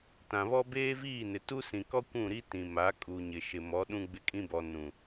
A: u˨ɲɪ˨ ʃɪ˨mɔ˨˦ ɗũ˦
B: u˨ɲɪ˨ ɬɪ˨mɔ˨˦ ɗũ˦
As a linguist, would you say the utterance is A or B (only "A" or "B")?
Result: A